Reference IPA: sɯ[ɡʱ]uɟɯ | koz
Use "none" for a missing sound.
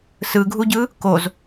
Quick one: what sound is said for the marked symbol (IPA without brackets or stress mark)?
ɡʱ